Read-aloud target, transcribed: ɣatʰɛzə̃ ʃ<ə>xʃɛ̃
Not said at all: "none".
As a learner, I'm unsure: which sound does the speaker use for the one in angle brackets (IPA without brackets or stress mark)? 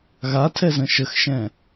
ə